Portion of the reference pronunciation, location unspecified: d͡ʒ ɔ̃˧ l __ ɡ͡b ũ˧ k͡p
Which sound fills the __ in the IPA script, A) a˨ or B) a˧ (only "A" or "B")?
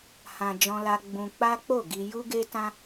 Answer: B